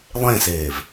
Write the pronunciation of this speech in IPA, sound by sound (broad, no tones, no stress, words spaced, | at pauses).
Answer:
lˠẽseːv